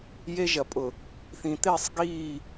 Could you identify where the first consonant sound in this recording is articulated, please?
palatal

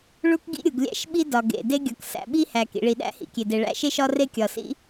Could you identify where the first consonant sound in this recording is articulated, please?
retroflex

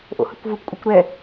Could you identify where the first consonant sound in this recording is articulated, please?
glottal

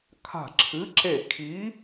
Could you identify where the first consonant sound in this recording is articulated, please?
velar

